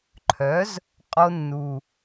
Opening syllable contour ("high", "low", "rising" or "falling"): rising